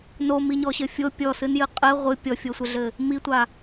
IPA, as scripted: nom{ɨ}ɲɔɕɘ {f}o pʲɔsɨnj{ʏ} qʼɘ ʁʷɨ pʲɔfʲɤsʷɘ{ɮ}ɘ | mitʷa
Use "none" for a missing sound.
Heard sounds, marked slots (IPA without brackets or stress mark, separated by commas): i, fʲ, ɨ, ɮ